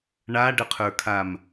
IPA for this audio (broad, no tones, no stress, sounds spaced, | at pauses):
ɳ a ɖ ə qʰ ə˞ kʰ a m